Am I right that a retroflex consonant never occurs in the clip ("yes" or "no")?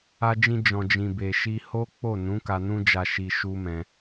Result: yes